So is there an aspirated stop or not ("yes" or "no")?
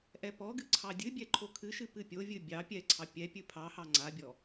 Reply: yes